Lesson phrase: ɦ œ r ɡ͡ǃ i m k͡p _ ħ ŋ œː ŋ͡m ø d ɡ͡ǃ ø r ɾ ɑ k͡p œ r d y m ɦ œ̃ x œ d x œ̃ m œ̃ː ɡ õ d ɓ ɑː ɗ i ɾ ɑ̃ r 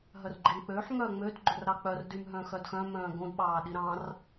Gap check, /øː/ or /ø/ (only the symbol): øː